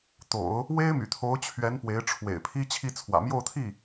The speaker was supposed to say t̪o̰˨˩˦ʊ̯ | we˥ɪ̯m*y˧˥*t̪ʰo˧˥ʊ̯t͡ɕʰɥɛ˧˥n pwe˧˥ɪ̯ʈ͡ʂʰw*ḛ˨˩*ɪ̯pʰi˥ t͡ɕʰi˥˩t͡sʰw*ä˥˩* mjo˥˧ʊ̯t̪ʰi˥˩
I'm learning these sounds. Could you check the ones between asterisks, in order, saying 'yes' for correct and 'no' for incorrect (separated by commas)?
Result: no, yes, no